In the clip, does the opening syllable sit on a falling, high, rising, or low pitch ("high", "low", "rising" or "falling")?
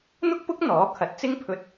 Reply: high